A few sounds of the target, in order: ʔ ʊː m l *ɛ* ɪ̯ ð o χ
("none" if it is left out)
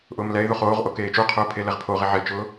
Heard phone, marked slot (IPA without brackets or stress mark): ɛ